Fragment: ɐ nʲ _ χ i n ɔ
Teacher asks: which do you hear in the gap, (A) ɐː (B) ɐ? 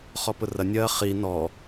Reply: A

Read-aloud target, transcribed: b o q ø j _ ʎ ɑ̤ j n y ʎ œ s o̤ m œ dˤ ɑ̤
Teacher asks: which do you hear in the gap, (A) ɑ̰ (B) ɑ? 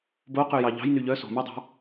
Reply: B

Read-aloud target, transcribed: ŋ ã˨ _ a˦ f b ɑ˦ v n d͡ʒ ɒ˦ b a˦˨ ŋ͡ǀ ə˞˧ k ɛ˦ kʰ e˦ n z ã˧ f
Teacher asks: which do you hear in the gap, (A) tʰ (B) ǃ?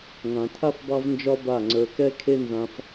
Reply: A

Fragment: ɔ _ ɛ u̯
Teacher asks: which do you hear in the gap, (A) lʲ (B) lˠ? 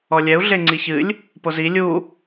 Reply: A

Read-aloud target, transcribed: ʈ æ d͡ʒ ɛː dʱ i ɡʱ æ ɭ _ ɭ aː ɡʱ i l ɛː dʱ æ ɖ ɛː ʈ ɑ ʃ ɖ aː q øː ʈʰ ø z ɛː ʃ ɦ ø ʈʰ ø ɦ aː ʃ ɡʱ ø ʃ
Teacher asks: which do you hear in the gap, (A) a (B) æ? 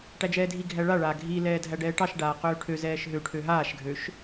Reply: A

